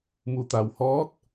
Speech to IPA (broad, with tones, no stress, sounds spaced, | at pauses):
m u˩ t̪ a˩ w h ɔː˧˥ t̚